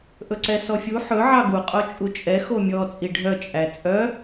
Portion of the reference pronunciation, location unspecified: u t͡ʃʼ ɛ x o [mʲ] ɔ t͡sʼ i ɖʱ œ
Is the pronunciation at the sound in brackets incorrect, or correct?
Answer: correct